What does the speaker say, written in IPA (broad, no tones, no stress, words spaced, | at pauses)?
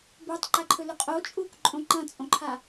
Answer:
butˤǃaǃʰɵlɵ qʼot͡ʃʼuːkǃʼõ ǃɐ̃t͡sʼõǃʰa